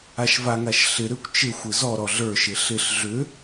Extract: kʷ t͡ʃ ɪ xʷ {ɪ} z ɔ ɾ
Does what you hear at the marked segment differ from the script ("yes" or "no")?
no